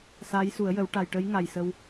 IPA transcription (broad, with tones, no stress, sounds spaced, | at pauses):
s aː˧˥ j s u˨˩˦ ə̯ j ə˨˩˦ w ʈ a˨˩ j ʈ ə˧˥ j ŋ a˨˩ j s ə˧ w